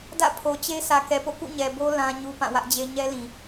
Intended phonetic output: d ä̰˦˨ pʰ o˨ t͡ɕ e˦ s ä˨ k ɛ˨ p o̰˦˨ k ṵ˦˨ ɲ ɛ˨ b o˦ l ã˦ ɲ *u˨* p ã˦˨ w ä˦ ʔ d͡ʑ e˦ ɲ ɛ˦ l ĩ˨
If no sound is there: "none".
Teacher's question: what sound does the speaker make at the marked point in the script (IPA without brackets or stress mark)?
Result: u˦